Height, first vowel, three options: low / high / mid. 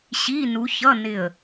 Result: high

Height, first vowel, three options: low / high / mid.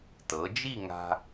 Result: mid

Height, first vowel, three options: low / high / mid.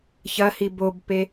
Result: low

